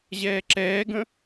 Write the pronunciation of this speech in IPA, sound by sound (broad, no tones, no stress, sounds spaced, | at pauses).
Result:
ʑ ɛː ǁ ɛː ɡ ə̃